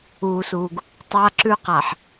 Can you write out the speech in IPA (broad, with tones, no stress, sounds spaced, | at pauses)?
uː˨ s uː˨ ɡ | tˤ a˦ ǁ ʉ˦ q a˨ ħ